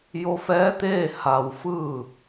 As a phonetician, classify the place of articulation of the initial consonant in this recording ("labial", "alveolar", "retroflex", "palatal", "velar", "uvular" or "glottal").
palatal